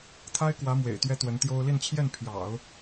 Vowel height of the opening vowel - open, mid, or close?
open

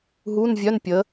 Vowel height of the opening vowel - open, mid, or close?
close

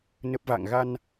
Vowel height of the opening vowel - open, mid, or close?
mid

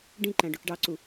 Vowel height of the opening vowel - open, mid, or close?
close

